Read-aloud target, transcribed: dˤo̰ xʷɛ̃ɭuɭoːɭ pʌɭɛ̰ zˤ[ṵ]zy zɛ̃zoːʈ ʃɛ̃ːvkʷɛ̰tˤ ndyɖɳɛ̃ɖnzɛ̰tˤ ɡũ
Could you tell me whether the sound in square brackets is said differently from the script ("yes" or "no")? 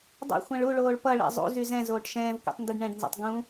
no